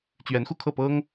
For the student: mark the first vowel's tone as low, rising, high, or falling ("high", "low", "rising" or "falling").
rising